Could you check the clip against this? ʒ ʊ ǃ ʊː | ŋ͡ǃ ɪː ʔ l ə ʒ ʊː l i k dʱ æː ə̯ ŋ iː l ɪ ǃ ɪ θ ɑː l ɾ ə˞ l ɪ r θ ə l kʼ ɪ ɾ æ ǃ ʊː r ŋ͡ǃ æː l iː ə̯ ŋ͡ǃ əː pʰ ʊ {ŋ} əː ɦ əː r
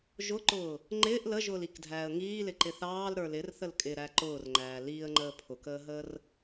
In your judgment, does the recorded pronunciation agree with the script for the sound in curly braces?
no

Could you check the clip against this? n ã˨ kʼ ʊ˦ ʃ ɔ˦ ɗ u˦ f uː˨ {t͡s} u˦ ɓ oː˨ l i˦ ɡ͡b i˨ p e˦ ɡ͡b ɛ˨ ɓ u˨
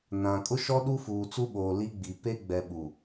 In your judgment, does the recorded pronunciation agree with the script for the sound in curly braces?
yes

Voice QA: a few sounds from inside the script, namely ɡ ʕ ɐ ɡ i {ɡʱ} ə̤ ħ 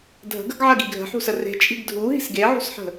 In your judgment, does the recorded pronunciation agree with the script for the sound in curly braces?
yes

